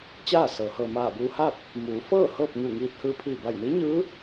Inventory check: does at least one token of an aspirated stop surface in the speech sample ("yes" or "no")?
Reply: yes